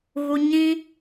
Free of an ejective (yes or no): yes